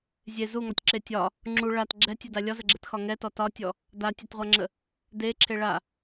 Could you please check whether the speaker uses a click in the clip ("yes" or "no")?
yes